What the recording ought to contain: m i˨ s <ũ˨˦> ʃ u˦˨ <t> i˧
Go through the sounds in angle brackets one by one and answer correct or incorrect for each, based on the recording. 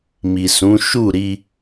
correct, incorrect: ɾ

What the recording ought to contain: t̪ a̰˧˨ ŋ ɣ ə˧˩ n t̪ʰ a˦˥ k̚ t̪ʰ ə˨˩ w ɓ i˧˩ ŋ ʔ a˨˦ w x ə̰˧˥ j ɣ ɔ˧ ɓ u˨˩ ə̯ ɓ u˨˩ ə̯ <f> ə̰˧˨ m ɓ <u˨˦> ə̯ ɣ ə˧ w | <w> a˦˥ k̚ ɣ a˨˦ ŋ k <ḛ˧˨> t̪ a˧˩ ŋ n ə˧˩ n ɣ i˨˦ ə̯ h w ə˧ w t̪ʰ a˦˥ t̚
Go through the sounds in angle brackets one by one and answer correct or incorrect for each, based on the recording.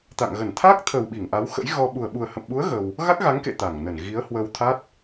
incorrect: h, correct, incorrect: ɣ, correct

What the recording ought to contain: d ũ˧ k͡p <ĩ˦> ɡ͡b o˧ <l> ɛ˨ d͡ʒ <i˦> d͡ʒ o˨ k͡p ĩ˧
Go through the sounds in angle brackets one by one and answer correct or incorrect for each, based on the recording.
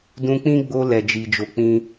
correct, correct, incorrect: i˨

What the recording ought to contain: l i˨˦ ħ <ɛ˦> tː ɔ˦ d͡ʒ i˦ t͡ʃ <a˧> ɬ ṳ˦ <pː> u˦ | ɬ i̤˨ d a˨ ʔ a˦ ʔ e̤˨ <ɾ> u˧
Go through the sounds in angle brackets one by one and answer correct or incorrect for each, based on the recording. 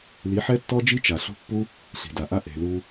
correct, incorrect: a˨, correct, incorrect: l

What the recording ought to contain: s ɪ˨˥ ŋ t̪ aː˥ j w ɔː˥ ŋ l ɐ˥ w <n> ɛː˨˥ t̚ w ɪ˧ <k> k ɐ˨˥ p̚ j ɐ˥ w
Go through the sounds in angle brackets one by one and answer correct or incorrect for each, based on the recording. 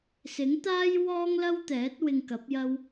incorrect: t̪, incorrect: ŋ

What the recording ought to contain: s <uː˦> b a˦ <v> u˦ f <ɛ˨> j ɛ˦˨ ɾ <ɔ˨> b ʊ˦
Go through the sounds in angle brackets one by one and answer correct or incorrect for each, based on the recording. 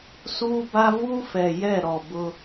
correct, correct, correct, correct

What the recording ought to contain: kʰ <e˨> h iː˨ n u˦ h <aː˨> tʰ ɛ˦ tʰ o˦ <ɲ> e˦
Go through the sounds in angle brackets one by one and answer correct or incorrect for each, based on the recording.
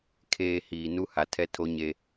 incorrect: eː˨, incorrect: a˨, correct

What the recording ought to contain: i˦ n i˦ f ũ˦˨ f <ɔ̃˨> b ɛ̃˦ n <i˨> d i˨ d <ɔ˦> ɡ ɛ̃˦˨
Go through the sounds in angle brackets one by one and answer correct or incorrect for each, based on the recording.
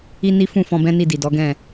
incorrect: ɔ̃˧, incorrect: i˦˨, incorrect: ɔ˨˦

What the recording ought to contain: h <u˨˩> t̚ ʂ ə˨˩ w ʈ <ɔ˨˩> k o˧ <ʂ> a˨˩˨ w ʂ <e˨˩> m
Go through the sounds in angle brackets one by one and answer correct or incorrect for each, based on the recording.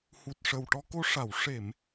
correct, incorrect: ɔ˧, correct, incorrect: e˨˩˨

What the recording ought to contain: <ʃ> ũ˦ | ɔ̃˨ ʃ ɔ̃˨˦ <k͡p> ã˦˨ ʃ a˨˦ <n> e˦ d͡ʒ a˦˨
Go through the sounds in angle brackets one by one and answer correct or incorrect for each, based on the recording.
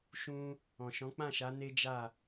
correct, correct, correct

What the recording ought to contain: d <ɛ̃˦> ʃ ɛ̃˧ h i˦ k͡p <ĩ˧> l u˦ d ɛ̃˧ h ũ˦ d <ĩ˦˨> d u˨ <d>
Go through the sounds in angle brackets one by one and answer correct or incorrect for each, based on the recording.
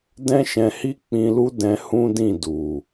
correct, correct, correct, incorrect: none

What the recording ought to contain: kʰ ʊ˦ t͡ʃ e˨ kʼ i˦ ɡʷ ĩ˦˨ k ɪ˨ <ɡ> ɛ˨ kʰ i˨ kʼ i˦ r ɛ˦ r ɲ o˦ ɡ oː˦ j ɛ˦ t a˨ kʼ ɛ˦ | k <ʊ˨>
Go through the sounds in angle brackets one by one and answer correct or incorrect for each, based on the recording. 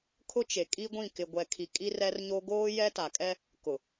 incorrect: ɡʷ, correct

